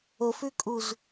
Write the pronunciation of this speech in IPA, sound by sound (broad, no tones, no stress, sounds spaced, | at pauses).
o f ʉ kʼ u z